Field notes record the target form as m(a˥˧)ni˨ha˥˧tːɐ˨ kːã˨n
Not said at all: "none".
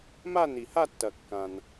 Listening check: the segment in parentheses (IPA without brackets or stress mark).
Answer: a˥˧